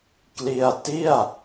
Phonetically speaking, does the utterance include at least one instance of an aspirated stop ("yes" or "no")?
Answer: no